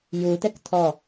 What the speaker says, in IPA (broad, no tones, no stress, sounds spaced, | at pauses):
j u t ɛ k tʰ ɔ